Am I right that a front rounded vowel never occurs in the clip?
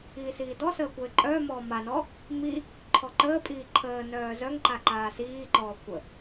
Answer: no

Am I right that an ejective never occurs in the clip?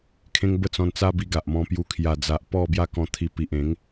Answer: yes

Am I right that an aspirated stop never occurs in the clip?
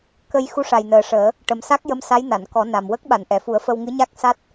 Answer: yes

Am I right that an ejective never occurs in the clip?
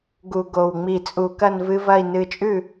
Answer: no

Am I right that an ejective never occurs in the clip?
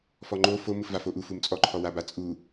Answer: no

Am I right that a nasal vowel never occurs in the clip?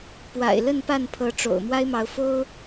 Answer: yes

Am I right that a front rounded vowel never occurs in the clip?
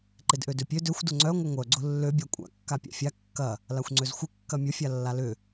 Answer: no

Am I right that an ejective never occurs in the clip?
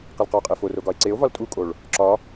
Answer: no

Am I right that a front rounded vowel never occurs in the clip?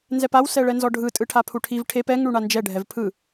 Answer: yes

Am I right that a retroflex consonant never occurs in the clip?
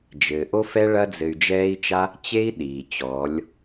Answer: no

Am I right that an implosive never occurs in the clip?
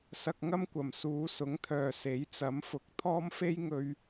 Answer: yes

